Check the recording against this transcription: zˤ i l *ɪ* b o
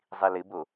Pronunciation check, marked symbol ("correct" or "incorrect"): correct